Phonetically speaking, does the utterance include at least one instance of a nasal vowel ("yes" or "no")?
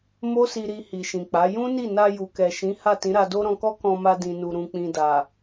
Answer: yes